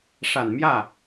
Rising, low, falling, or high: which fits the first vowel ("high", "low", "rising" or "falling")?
low